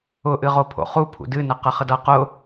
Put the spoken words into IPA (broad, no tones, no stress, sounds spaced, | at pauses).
ʊ ʔ ɨ ʁ o pʰ o̰ χ u pʰ ṵ d ɨ n ə q ə χ ə d ʌ q ʊ